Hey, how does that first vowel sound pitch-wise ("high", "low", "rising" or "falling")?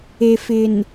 low